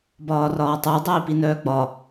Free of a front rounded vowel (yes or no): no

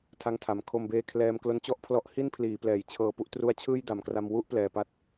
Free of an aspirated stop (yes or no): no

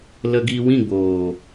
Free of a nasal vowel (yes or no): no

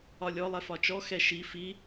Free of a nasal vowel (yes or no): yes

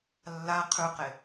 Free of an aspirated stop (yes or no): no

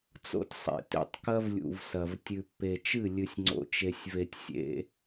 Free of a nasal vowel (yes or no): yes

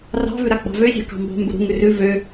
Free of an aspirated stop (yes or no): yes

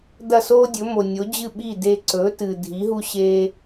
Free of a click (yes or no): no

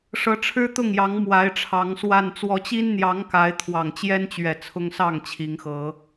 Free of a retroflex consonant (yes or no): no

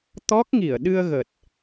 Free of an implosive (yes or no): no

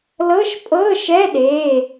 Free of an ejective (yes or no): no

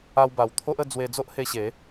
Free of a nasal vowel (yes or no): yes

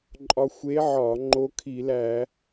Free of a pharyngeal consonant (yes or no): no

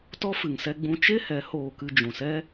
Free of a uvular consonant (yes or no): yes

